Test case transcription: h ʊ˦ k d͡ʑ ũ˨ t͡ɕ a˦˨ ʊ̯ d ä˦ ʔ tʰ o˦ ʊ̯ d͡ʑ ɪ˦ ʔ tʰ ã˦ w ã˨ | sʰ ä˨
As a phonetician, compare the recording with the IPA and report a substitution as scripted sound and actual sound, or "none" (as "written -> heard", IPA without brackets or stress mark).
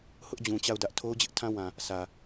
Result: k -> ʔ